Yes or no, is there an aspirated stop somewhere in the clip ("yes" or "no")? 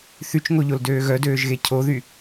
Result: yes